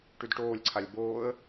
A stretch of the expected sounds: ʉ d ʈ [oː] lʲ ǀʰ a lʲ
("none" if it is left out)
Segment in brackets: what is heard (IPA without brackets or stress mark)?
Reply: oː